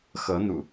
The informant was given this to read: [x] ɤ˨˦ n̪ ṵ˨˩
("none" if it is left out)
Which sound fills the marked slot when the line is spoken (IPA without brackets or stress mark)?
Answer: x